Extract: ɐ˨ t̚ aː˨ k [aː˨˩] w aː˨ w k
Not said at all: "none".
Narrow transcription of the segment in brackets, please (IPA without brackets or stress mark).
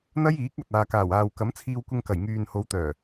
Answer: aː˨˩